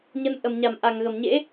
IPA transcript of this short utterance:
ɲ ə˨˦ n ʔ ə˧˩ m ɲ a˧˩ m ʔ a˧˩ ŋ ɣ ə˧˩ m ɲ ḛ˧˥

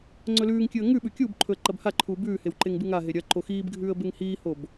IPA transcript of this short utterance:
ŋ͡ǀ ɵ l ʉː ŋ kʲ ɨ ə̯ ŋ ʉ ɓ ʉ kʲ uː b ǃʰ ɵ ə̯ ǃ ɐ b h a ǃʰ uː b ʉː h e w ǃ e ŋ b ɨ ŋ a ɦ e ɾʲ ɐ ǃ o x iː b ɡʱ ʉː ə̯ b e ŋ h iː h o b

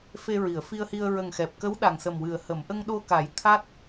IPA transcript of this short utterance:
f e˧ ɹ i˨˩˨ ə̯ f i˧ ə̯ h i˧ ə̯ ɹ ə˨˩ ŋ x ɛ˨˩ p̚ k ə˧˥ w ɗ a˨˩ ŋ s ə˨˩ m w ɨ˨˩ ə̯ h ə˨˩˨ m ʔ ə˧ ŋ ɗ o˧ k a˨˩˦ j t̪ʰ a˦˥ t̚

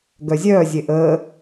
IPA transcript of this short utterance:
ɡ œ zʲ œː zʲ e ʔ əː

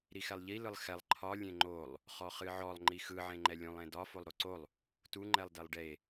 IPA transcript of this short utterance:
ɾ i x ɛ lˠ ʎ i l ɯ lˠ x ɛ lˠ ǃʰ ɒ lʲ ẽ ŋ͡ǃ o lˠ | χ ɔ χ ɨ ʕ ɔ lˠ ŋ͡ǃ i x ɯ ʕ ẽ ŋ͡ǃ ɛ lʲ ũ lˠ ẽ d ɒ f o lˠ ɾ o ǀ o lˠ | t u ŋ͡ǃ ɛ lˠ d ɛ lˠ ɖ e

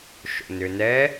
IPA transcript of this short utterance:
ʃ o̰ n ʏ n ɛ

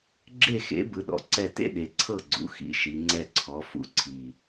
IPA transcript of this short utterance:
ɡ͡ǁ e˥˩ x ḛ˩˥ b ɯ˩˥ ɗ ɔ̰˨˩ ǀ ɛ˥˩ t ḛ˦ ɗ e˩˧ ǀʰ ɤ˥˩ ɡ͡ǀ ṵ˩˧ x ḭ˩˥ ʃ i˩˧ ŋ͡ǀ ɛ˥˩ ǀʰ ɔ˩˥ f ṵ˩˥ ǀʰ i˨˩

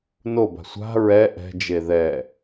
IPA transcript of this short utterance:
n o b a̤ sʷ a̤ ɹ ɛ ʔ ɛ̤ d͡ʒ e ð ɛ

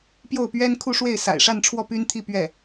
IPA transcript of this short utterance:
p j o˥˩ ʊ̯ p ɥ ɛ˥ n kʰ u˥˧ ʂ w e˥˩ ɪ̯ s a̰˨˩ ɪ̯ ʂ a˥˧ n ʈ͡ʂʰ w ɔ˥˩ p y˥ n t̪ʰ i˥˧ p ɥ ɛ˥˩

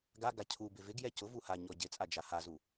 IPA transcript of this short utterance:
ɡ a ɡ a cʰ u b ɪ v ɪ ɡ j ɛ c ʊ v u h a ɲ ɔ ɟ ɪ t͡sʼ a d͡ʒ a h a z u

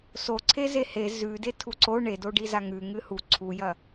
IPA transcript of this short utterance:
s o ǀʰ e z e h e z ʉ d e tʰ u ǀ o ɳ e d o ɖ i z a ŋ ʉ ŋ ɨ h u ǀʰ u j ɐ

